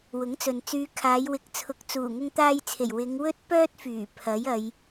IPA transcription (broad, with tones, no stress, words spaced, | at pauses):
wʊ˨˥ŋt͡sɵ˨n t͡syː˨˧kʰaː˨˧jwɪ˨k̚ t͡sʰʊ˨˥k̚t͡suː˨˩ ŋʊ˧ŋt̪aː˧jt͡sʰe˨˩j wɪ˨˧ŋ wɵ˥t̚pœː˥t̚fyː˨˩ pʰɐ˨˥jɐ˨˧j